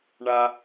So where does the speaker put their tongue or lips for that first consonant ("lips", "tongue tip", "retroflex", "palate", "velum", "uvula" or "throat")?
retroflex